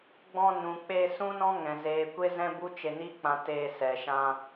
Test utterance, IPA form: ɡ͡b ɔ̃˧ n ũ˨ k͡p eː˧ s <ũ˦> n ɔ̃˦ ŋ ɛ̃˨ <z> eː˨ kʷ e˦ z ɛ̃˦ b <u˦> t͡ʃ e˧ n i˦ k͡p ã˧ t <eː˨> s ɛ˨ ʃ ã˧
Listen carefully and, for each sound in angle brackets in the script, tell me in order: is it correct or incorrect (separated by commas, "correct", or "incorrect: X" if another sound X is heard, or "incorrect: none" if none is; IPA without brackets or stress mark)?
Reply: correct, correct, correct, incorrect: eː˧